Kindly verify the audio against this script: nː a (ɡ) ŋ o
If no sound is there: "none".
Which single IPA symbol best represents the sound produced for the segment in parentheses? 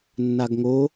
ɡ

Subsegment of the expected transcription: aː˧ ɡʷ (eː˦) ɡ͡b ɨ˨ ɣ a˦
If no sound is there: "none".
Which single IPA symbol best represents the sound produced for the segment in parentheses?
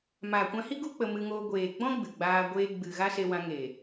eː˧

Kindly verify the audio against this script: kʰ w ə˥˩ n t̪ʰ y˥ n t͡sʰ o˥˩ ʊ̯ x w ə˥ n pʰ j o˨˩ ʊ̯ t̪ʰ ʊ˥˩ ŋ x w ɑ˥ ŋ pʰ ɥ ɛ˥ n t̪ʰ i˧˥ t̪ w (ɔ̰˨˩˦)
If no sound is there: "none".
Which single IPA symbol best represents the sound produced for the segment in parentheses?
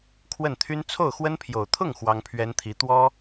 ɔ˥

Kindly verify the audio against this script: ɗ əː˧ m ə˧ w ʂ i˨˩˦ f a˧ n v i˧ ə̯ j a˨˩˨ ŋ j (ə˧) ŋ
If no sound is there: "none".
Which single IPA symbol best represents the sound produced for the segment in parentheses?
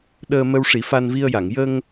ə˧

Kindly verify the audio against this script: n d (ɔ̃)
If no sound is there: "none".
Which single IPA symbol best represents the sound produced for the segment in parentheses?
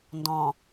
ɔ̃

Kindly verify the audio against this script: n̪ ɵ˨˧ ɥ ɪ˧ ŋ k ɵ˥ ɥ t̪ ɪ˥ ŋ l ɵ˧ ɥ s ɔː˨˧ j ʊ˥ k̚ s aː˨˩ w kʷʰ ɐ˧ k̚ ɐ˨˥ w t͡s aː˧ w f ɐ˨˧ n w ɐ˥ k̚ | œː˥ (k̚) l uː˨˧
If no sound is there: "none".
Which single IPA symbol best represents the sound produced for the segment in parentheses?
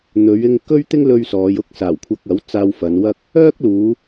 k̚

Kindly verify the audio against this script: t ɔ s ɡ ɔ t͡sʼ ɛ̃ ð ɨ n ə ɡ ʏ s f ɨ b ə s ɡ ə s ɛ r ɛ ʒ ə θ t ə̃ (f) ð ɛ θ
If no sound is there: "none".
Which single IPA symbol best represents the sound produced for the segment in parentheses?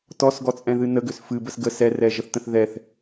θ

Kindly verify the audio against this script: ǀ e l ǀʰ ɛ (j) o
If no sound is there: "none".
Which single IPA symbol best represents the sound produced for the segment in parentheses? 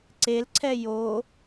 j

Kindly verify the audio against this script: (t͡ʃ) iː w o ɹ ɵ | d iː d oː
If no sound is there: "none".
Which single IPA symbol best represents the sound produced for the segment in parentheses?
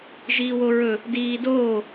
ʒ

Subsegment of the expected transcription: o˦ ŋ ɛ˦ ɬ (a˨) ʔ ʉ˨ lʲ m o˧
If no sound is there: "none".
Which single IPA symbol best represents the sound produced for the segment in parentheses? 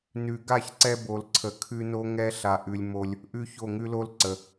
a˨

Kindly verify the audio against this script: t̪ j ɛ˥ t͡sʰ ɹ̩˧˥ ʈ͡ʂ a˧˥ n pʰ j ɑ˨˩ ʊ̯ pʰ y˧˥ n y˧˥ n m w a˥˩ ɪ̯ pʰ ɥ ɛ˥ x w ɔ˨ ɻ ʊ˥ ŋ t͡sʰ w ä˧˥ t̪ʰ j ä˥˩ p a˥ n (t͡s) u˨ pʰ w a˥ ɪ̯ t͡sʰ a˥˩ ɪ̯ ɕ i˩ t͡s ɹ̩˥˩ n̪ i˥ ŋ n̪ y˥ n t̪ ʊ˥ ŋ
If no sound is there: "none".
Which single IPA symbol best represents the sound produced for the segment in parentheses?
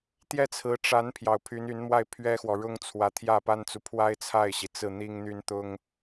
t͡s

